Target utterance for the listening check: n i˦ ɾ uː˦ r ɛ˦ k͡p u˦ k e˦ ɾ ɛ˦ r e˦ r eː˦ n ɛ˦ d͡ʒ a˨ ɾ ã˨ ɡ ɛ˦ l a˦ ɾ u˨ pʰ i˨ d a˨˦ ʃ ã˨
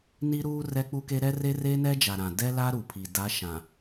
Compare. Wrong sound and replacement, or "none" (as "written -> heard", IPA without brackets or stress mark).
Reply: ɡ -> d